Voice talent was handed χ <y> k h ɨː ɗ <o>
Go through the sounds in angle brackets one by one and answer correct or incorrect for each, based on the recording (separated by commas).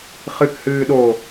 incorrect, correct